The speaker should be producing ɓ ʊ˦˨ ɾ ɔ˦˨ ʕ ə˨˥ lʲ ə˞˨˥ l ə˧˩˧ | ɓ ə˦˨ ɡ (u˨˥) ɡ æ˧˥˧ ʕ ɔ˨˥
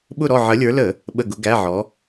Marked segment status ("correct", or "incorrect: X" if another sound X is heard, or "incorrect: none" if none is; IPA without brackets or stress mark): incorrect: ʊ˨˥